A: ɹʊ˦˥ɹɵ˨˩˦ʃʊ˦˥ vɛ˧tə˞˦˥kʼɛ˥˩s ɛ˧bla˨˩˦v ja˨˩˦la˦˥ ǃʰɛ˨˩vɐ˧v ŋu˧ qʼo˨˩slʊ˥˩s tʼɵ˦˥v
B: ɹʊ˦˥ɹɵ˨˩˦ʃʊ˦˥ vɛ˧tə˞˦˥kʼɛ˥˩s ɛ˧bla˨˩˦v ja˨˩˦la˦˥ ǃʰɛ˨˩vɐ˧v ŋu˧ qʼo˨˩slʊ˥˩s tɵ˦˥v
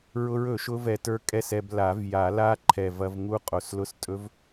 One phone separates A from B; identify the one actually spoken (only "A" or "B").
A